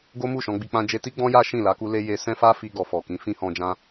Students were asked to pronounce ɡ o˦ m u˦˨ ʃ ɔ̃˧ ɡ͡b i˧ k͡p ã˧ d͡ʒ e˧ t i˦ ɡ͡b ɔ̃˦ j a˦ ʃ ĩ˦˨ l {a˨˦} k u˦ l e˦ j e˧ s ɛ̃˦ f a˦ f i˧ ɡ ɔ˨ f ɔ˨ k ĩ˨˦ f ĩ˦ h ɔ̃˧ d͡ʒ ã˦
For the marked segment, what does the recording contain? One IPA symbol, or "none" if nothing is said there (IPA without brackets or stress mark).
a˨˦